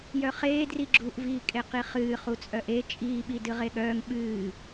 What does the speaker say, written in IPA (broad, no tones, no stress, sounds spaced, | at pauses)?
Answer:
j œ χ eː d r i ɡ͡ǁ u ʔ v iː kʼ e q i χ ɨː χ u t͡sʼ œ ʔ e t͡ʃʼ iː ɓ i d ɨ ʁ e ɠ œː ŋ ɓ ɨː